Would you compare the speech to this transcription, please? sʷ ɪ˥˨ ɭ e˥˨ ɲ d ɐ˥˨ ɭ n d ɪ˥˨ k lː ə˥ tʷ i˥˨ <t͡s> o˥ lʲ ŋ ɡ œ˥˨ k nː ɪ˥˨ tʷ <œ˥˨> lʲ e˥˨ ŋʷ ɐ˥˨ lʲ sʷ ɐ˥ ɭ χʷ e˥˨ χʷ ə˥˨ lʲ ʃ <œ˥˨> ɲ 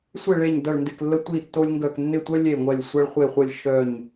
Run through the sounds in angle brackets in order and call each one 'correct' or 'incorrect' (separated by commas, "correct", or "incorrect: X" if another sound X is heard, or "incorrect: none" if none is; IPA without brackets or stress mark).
incorrect: tː, incorrect: œ˥, correct